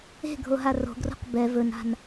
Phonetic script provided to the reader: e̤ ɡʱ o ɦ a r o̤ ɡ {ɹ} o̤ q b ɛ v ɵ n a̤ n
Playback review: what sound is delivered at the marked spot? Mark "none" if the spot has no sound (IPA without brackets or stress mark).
r